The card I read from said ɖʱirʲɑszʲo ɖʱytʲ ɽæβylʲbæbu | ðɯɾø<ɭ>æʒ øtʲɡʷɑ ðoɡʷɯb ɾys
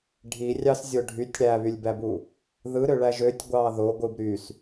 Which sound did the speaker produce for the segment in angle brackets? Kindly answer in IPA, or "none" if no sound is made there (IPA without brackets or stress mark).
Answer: ɭ